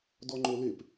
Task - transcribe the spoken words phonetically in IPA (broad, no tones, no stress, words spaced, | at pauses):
dɔŋ͡ǃolep